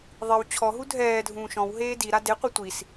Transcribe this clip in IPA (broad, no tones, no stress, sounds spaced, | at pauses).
ðˤ i w t͡ɕʰ ɔ ɦ u dʱ ɛː dʱ ũː ʃ ɔ̃ w ɦ eː d i ɾ a d e qʷ e tʷ i s